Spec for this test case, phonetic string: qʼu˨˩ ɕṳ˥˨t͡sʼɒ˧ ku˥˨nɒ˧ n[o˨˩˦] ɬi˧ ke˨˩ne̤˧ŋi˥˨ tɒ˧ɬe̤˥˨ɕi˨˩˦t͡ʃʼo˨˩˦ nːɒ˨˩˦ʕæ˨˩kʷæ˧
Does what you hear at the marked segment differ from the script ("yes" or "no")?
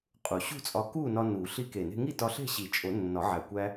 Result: yes